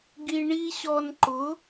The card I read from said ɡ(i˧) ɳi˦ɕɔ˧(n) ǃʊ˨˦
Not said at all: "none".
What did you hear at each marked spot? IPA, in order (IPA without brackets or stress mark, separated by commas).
i˧, n